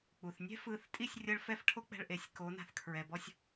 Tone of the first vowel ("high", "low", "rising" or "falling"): low